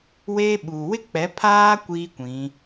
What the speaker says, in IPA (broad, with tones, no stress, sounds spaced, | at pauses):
w eː˦ ɓ uː˨ w ɪ˦ k͡p ɛ˨˦ pʰ aː˦ kʷ iː˦ kʷ ĩ˨˦